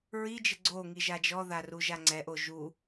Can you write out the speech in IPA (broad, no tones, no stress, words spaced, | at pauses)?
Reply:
ɹid͡ʒɪ ɡ͡ǀoŋi ʒad͡ʒɔða ruʒaŋ͡ǀɛʔo ʒu